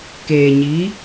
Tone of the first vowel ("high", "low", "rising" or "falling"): low